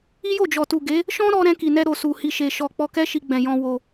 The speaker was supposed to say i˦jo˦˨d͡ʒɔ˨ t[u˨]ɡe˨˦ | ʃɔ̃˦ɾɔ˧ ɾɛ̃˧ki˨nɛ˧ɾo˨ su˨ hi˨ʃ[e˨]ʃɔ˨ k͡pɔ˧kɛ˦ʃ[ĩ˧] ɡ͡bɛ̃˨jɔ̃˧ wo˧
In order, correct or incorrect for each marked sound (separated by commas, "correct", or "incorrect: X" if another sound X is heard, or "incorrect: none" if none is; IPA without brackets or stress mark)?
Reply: correct, correct, incorrect: i˧